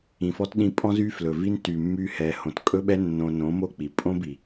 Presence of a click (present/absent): absent